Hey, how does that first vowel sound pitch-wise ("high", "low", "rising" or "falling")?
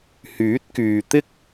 rising